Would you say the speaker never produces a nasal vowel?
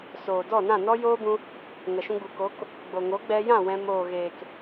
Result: no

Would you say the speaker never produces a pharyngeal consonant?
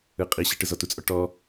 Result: yes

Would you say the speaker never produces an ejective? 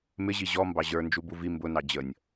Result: yes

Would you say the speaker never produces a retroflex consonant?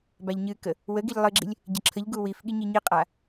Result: yes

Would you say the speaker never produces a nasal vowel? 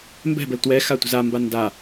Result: yes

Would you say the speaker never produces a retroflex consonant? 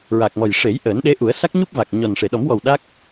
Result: no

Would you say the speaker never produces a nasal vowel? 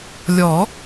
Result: yes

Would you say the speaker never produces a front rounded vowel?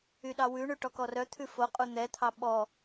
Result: no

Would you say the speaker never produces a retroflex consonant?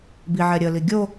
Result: yes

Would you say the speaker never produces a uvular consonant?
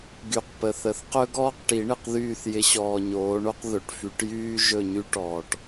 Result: no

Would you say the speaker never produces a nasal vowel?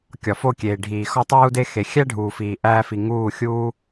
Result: yes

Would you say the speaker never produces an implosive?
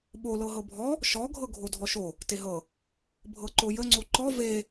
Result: no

